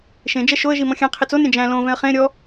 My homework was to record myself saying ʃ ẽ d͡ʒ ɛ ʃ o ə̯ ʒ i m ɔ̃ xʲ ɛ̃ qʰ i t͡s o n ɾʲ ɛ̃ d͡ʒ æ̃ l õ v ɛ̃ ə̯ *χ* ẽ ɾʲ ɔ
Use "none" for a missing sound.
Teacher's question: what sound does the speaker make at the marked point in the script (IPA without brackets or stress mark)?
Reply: χ